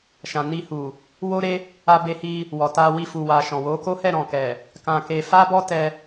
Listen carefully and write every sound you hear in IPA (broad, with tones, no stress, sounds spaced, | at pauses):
ʃ ã˨ n i˧ h u˨ | w o˦ ɾ e˦ | a˧ b e˧ h i˧ | w ɔ˨ t a˧ w i˧ f u˨ w a˨ ʃ ɔ̃˨ w o˨˦ k o˦ h ɛ˦˨ ɾ ɔ̃˨ k ɛ˨ | k ã˧ k e˧ f a˦ b ɔ˦ t ɛ˧